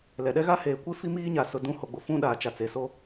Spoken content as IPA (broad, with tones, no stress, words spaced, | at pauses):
lɛ˨ɗɛ˦ɣa˦ heː˨kʷe˦ fi˦miː˦ɲa˨ sʊ˨ dũ˦ ho˨ɡ͡bʊ˨fũ˦ ɗaː˨t͡ʃa˨t͡seː˨so˦